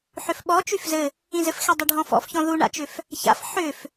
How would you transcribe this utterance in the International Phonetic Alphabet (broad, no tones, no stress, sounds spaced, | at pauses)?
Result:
ħ ʏ f ɓ ɔ t͡ʃ y f z ɘ | ĩ z ɘ f x e dˤ ʏ ɖʱ ɔ̃ f ɔ̰ f ç ɔ̃ ð u ɳ a̰ t͡ʃ ʏ f | ç a̰ f ħ ʏ f